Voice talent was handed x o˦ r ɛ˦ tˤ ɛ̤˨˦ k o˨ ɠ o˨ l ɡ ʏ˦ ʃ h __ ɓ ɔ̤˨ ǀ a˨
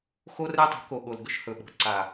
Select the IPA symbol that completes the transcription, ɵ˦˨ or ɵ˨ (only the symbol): ɵ˨